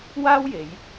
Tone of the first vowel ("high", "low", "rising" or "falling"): high